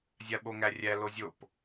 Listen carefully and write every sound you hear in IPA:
zʲ a ɓ o ŋ æ rʲ æ l o zʲ o p

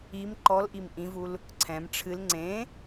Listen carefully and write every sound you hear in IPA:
i m ǃ ɔ l ʔ i m ʔ ĩ v u l | ǀʰ ɛ̃ m ʈ͡ʂʰ ɨ l ŋ͡ǀ ẽ

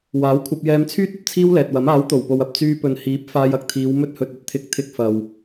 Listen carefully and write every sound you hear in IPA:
w aː˨˥ w kʷʰ ɐ˧ p̚ j ɛː˧ m t͡sʰ yː˥ t̚ ɐ˨ p̚ t͡sʰ iː˥ w l ɛː˨ t̚ w ɐ˨˥ m aː˨˥ w t̪ o˨˩ w p o˨ w ɐ˨ p̚ t͡s yː˧ p ɵ˨ n h iː˨˥ p̚ f aː˧ j ɐ˨ k̚ t̪ʰ iː˨˧ w m ɵ˧ t̚ h ɵ˨ t̚ ɵ˧ t̚ t̪ʰ ɪ˨˥ k̚ t̪ʰ ɪ˧ k̚ f ɐ˨ w

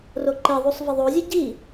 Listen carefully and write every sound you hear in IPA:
r o ǃ e ðˤ u sˤ v ɘ ðˤ o zʲ e ɟ i

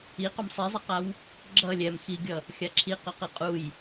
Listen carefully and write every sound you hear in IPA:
i q o m sˤ i zˤ i q a w | ɡ͡ǁ ʌ lʲ ɛ m x i ɡʲ ʌ | xʲ a ǁʰ i q ʌ q ɯ qʼ u j

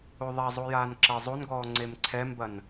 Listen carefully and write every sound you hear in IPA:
o ðˤ a zˤ o j aː n ǁ ɐ zˤ o n ɡ ɔː ŋ͡ǀ e m ǀʰ ɛ m b ɐ n

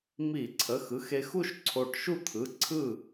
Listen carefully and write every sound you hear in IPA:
m i˧˩˧ ǀʰ ə˩˧˩ x ɯ˩˧˩ x e˧ x u˥˧ ʃ ǀʰ o˧˩ ʈ ʃ u˥˩ t̪ʰ ɯ˩˧˩ ǀʰ ɯ˥˩

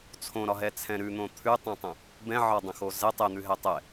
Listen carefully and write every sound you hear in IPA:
t͡sʰ õ ɾ ɒ ɦ ɛ t͡sʰ ɛ̃ ɾ ʉ n̪ õ t̪ʰ ʉ tˤ ɛ̃ tˤ ə̃ | b ɛ̃ ʕ ɒ dˤ ə̃ x o z ɛ tˤ ɛ n̪ ʉ ɦ ɛ tˤ ɛ

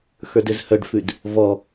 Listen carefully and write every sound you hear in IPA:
x ə˞ d ɘ z h œ ɖ f ʉ d | v ɔ

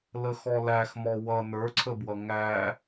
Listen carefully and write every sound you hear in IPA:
l ə x ɔ l æ x m ɔ w ʌ n ə˞ ǀʰ ə b w ʌ ŋ æ

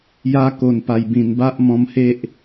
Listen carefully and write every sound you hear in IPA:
j a˧ k o˨˩ n p a˨˩ j b ĩ˨˩ n b a˦ ʔ m ɔ̃˧ m h e˦ ʔ

